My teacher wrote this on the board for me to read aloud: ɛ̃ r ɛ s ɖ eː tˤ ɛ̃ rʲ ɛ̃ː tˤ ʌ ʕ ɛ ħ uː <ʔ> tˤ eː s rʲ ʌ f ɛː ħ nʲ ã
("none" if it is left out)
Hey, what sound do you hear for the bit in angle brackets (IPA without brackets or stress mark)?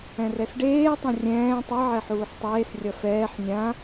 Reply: ħ